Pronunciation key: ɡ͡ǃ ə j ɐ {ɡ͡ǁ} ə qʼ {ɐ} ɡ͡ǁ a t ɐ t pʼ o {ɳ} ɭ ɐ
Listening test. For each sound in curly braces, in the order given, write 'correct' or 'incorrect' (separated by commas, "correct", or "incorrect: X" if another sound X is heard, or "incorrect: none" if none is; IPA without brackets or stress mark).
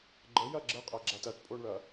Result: correct, correct, correct